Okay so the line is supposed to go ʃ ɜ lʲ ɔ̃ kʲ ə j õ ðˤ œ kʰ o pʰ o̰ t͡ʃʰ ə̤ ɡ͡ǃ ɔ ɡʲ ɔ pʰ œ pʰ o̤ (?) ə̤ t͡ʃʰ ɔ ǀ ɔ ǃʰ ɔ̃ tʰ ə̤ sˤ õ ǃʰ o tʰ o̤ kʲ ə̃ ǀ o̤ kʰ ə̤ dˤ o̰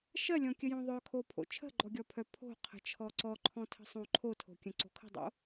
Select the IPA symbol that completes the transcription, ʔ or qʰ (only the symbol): qʰ